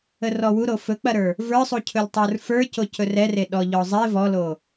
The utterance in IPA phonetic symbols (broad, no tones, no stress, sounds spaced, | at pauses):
ə r ɔ w u ɾ o f ɵ k͡p ɐ ɾ ə˞ | v ə˞ sˤ u cʰ ɵ l tˤ ə˞ r f ə˞ c o c ɵ r ɛ r e ɗ ɔ ʎ ɔ zˤ e v ɔ l o